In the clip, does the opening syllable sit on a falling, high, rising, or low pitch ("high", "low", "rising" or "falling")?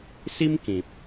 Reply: high